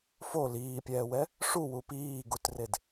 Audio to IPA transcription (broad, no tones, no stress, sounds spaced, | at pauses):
f o l iː pʲ ɛː w ɛ | ʂ u w u p iː ɡ u t r e d